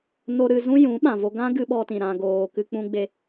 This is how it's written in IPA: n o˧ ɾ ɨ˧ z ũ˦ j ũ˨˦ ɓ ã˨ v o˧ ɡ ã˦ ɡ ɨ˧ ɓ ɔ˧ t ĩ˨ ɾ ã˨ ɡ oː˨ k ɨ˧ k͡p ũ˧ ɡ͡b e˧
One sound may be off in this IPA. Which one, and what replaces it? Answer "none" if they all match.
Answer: none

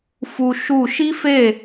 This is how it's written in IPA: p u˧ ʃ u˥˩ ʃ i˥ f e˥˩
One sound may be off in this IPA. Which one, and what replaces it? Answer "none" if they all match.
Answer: p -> f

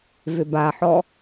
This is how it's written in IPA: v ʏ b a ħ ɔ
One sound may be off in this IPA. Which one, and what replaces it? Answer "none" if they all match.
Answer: none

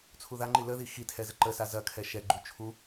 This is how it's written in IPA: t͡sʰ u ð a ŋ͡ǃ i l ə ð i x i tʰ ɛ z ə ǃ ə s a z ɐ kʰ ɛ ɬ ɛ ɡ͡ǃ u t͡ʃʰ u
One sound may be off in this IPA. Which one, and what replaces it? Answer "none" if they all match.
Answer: ɬ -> ʃ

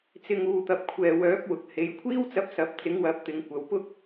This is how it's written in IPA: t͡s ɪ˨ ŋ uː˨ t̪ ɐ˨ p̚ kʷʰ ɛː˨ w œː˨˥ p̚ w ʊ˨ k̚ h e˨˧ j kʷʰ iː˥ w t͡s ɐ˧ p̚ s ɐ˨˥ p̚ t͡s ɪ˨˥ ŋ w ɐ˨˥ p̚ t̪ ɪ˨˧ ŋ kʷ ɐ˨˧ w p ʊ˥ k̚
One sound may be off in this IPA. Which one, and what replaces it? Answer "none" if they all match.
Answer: none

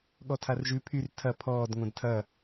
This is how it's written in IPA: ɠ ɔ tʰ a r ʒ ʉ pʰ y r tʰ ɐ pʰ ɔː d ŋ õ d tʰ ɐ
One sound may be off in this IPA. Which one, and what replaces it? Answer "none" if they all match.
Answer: none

